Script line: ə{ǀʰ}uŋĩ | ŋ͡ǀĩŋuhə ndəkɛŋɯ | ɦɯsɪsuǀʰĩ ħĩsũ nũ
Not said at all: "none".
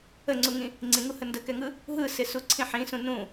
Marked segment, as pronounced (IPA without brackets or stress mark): ŋ͡ǀ